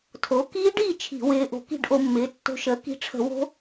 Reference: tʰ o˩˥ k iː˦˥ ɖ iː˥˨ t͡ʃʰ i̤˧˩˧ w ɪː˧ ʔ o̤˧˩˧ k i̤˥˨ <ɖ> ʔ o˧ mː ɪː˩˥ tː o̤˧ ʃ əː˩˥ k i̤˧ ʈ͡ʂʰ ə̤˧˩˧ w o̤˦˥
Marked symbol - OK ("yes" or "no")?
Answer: yes